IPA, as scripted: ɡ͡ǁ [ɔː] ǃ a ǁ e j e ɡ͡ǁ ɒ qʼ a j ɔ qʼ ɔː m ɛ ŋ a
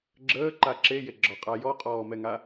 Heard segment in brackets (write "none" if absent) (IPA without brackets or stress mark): əː